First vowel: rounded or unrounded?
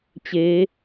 unrounded